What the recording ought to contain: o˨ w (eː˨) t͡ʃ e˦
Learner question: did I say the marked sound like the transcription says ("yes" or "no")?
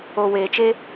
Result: yes